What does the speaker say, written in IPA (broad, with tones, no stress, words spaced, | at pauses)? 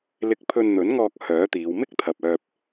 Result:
lɪ˧k̚pʰɵ˧nn̪ɵ˨˥nŋɔː˧k̚ hœː˨˥t̪iː˨˧w mɪ˥k̚t̪ʰɐ˨p̚œː˧p̚